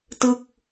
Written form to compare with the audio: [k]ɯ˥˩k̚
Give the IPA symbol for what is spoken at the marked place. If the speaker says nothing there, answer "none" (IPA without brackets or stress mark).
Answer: t